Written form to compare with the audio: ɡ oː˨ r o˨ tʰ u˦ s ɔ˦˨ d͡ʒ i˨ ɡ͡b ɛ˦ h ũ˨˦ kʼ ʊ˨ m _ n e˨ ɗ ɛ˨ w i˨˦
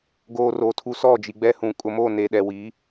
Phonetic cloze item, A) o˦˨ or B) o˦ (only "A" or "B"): A